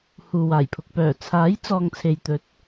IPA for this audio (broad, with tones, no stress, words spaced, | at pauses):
huː˨waː˨˩jpʰʊ˨k̚ pœː˨˩t͡sʰaː˨˥j t͡sɔː˨ŋ t͡sʰe˨jt̪ɵ˨˥t̚